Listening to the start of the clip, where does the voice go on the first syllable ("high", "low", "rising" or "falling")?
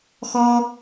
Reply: high